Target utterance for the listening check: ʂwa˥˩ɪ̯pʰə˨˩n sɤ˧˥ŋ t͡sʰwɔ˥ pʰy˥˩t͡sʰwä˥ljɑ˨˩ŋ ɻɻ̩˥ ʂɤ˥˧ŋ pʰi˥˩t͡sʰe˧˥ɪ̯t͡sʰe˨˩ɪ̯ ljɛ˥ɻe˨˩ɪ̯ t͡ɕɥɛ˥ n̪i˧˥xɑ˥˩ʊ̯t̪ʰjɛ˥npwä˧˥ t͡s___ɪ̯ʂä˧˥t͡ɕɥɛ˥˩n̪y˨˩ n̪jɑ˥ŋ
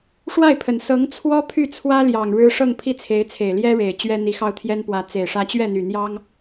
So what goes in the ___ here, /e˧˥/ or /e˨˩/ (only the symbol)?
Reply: e˨˩